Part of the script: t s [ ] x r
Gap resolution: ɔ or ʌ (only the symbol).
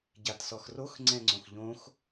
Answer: ɔ